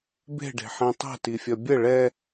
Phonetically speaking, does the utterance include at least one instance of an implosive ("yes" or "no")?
no